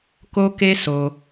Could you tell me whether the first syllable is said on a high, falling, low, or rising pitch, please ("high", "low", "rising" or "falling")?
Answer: high